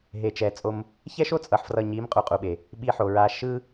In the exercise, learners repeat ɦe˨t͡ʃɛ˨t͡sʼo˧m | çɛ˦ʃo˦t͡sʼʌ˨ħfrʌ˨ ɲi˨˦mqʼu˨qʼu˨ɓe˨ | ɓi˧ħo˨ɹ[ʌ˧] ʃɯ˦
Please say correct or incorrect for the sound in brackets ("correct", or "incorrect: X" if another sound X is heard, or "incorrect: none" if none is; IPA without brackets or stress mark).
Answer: incorrect: a˧